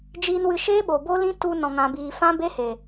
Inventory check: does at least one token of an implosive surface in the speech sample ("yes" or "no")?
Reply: yes